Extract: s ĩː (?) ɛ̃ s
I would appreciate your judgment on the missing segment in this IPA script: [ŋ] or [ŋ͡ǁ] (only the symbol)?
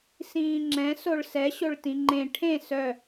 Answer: ŋ͡ǁ